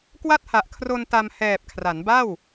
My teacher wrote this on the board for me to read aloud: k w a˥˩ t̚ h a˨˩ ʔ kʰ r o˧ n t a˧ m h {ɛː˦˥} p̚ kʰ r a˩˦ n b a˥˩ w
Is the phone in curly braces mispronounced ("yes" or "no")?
yes